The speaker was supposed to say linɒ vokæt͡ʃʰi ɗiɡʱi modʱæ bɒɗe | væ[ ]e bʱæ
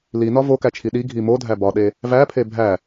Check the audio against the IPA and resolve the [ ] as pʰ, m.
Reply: pʰ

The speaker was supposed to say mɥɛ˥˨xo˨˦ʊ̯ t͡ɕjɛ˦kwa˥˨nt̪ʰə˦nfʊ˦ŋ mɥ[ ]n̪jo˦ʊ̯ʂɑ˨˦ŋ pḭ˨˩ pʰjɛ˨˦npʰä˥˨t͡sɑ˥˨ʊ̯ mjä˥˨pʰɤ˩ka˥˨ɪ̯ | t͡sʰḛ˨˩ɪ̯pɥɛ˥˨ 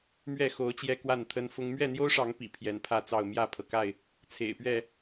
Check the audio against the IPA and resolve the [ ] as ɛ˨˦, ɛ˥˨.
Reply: ɛ˥˨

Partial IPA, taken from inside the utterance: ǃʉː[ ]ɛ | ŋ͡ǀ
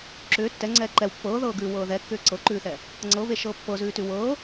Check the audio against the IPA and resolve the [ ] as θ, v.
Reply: θ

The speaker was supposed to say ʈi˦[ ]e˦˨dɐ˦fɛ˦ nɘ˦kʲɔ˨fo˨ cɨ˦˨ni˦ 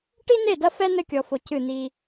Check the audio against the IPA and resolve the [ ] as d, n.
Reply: n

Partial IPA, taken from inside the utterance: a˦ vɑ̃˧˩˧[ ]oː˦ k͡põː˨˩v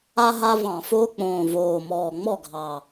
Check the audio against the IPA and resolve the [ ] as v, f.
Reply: f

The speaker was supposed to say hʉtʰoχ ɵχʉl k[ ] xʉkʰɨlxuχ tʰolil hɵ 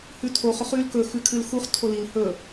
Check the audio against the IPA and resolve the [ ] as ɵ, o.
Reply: ɵ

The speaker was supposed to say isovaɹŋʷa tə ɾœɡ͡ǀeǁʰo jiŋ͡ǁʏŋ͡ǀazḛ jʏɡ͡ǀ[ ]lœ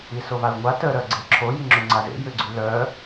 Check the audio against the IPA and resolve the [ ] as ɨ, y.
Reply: y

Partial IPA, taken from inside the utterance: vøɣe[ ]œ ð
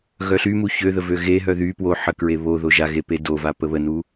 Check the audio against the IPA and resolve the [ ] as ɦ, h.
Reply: ɦ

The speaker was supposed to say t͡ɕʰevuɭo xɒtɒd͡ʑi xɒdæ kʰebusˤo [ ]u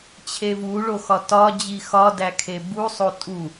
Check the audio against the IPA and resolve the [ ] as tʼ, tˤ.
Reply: tʼ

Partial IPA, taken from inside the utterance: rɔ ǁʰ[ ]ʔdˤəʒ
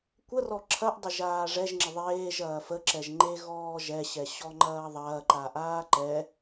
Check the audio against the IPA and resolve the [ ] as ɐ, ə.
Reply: ɐ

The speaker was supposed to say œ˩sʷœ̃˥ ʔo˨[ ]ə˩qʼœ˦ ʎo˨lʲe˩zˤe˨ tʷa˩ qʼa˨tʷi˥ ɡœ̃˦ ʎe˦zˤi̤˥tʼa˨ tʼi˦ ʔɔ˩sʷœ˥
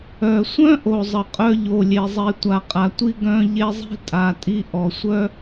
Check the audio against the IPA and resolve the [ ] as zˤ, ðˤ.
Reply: zˤ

